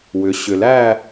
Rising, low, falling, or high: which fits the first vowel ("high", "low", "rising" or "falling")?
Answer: rising